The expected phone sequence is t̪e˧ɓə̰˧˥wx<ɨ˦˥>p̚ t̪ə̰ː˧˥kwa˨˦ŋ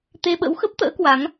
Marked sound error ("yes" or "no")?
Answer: yes